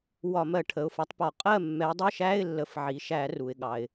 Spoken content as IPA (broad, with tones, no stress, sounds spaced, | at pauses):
w ɒ˧˩˧ m ɜ˧˩˧ ʈʰ ə˩˧˩ ʊ̯ f ʌ˨˦ tˤ p ɒ˧˩˧ qʼ ɜ˥˨ mː ɛ˨˦ dˤ ə˧˥˧ ʃ æ˧˥˧ ɪ̯ lː ə˩˧˩ f ʕ i˩ ʃ æ˧˩˧ r u˩ ɪ̯ ɠ ɑ˩ ɪ̯